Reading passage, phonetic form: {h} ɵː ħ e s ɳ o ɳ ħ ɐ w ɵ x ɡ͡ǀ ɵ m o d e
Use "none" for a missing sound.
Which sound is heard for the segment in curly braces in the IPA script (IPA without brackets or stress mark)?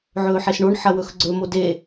ʕ